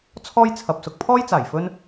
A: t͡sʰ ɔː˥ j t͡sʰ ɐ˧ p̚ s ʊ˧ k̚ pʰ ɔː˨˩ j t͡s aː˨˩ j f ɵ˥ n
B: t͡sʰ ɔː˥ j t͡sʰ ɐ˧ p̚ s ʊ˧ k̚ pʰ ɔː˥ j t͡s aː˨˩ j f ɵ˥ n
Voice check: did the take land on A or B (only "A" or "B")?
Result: B